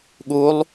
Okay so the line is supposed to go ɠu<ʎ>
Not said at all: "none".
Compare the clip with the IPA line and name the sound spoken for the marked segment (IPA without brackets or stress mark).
lˠ